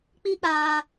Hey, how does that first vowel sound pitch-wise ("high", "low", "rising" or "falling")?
high